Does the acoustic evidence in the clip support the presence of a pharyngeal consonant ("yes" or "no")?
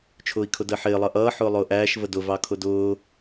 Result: yes